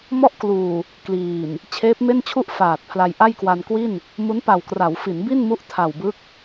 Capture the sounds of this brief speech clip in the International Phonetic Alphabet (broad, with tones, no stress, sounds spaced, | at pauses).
m ɔ˥˩ ʔ k l uː˨˩ | k l iː˨˩ n | t͡ɕʰ eː˦˥ p̚ m e˥˩ n t͡ɕʰ u˥˩ ʔ f aː˨˩ t̚ pʰ l a˧ j ʔ a˥˩ j k w a˧ n k w i˥˩ n | m u˦˥ n p a˨˩ w k r a˩˦ w f i˩˦ n b i˥˩ n m u˦˥ ʔ tʰ a˨˩ w b ɯ˦˥ k̚